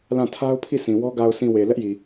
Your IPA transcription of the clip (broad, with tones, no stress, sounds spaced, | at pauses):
l ã˦˨ tʰ a˦ ʊ̯ pʰ i˦˨ sʰ ĩ˨ w ɔ˦ ɡ a˨ ʊ̯ sʰ ĩ˨ w e˨ l ɛ˦ ʔ j i˨